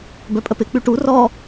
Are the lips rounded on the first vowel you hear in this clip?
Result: yes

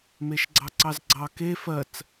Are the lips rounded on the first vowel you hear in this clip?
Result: no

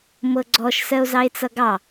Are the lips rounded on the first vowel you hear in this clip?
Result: no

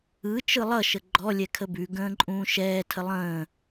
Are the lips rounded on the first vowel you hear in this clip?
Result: no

